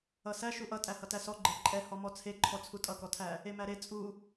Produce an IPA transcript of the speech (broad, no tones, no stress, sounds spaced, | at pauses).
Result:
ʌ s æ ʃ u ʔ ʌ tʼ æ h ʌ t æ s ɔ ɡ͡ǃ e ǃʼ ɛ h ɔ m ɔ t͡sʰ e ǃʰ ɔ t͡sʰ u tʼ ʌ k ɔ tʰ æ | e m æ ɾ e t͡sʼ u